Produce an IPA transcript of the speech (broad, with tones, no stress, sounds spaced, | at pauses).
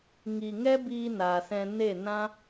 ŋ i˨ ŋ ɛ˦ b iː˧ n aː˨ s ɛ̃˧ n e˦˨ n ã˦